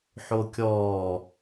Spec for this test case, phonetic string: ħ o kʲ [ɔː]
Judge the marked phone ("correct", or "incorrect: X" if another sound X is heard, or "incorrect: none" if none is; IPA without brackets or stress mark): correct